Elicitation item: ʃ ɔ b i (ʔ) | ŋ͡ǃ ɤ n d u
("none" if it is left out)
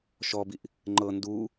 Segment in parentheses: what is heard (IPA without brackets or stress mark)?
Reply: ʔ